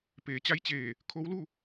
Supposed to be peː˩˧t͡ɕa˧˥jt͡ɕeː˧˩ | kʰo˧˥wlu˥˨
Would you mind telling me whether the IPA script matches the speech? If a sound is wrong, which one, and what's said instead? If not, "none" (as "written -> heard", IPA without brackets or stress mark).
none